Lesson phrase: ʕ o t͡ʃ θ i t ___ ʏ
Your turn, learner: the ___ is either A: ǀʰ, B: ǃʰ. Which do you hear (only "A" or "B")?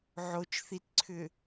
A